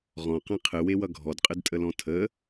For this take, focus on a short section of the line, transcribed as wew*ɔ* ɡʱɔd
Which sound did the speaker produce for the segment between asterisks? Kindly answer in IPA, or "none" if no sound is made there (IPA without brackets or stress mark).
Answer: ʌ